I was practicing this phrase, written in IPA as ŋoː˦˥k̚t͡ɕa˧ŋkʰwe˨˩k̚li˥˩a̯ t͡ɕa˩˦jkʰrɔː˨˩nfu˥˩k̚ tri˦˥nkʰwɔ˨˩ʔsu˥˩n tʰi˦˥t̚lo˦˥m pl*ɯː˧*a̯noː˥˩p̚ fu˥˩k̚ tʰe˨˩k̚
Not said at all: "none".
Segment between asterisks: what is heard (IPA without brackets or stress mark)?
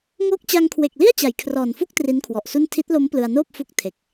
ɯ˧